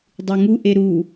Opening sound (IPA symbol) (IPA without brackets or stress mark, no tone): dˤ